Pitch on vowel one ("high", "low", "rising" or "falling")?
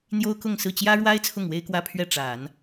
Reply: high